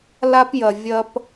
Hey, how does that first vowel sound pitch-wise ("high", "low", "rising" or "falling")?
high